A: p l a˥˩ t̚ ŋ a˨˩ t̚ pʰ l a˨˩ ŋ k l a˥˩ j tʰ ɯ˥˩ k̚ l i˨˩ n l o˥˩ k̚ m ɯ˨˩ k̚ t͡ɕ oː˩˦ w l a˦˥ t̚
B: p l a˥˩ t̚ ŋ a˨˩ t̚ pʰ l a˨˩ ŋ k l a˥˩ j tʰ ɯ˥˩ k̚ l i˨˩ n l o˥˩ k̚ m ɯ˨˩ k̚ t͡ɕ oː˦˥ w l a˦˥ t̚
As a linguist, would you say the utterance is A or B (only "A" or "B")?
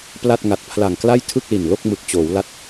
A